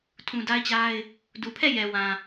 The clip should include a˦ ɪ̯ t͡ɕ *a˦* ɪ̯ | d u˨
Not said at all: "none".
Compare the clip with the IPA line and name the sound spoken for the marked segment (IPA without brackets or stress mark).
a˦